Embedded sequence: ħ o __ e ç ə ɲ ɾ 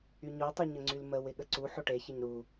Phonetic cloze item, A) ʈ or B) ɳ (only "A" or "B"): A